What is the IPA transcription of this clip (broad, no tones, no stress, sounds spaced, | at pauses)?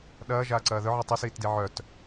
ɗ ɐː ʒ aː ǀ ɐː ð œ ʕ e tˤ i s iː t d i ʕ œ t